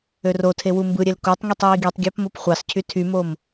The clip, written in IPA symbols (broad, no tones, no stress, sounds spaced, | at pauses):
ø r o tʰ e w u m b ɯ ɾʲ e l k o tˤ ŋ i tˤ j i ɡ i tˤ ɡʲ ɑ p m o p χʷ ɑ s cʰ y tʰ y m o m